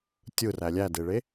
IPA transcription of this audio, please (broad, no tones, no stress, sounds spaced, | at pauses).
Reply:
tʲ ɯ r æ lʲ æ d e ɭ e